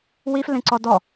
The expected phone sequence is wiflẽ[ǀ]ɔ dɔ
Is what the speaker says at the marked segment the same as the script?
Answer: yes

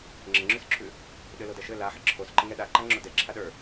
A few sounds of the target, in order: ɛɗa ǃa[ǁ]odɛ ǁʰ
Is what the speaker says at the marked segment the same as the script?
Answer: no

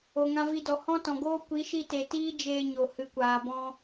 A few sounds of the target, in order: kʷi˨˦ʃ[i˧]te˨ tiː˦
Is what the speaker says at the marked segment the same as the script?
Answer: yes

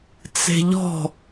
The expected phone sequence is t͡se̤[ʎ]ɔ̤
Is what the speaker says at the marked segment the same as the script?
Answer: yes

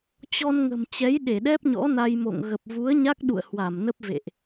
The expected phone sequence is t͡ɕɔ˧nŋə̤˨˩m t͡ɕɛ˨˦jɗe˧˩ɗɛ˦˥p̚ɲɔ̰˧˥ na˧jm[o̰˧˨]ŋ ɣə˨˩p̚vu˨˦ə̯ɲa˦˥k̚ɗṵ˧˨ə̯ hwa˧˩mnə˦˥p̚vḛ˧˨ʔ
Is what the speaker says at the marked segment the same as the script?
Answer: yes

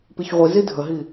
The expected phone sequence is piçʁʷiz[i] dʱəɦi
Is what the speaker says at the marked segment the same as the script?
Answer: yes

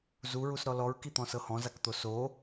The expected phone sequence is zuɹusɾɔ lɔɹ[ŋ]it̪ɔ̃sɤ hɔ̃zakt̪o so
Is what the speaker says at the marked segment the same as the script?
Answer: no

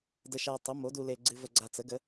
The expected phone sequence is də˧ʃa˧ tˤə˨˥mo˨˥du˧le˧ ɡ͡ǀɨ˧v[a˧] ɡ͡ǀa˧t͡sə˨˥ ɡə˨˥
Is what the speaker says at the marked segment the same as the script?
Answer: no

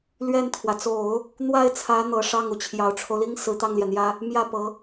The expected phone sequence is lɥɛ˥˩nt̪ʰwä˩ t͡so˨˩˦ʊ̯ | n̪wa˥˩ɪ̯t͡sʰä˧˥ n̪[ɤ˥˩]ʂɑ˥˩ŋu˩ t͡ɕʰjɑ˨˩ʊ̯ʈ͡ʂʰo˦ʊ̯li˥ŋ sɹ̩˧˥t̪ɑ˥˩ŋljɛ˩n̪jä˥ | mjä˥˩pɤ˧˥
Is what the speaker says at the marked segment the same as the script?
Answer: no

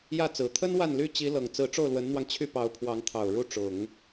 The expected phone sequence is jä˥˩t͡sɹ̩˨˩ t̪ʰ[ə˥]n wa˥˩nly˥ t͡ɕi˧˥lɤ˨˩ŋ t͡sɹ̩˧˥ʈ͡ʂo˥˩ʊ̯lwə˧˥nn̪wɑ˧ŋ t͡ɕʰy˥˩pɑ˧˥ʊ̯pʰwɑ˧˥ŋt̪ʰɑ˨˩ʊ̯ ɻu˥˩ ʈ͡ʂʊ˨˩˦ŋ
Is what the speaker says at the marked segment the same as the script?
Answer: yes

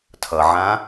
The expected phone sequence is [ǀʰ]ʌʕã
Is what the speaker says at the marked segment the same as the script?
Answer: no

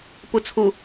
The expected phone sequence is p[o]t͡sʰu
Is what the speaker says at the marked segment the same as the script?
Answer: no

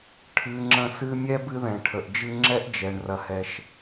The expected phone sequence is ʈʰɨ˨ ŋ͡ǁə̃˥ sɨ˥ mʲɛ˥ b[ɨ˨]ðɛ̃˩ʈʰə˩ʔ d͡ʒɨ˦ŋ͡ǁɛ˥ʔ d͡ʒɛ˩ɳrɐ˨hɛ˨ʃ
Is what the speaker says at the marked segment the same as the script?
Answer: no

